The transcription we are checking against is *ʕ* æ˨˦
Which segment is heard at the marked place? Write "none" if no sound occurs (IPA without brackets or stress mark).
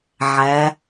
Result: ʕ